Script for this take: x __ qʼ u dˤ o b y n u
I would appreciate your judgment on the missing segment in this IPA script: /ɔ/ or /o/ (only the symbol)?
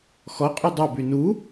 ɔ